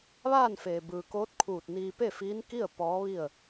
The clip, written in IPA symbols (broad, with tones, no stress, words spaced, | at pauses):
ʋaː˥˨nfeː˩bɯː˩koː˧˥t̚ kʰuː˧˩t̚niː˧ pe˥˨fiː˧˥nki˥˨ə̯ pɔː˧˥ʋi˥˨ə̯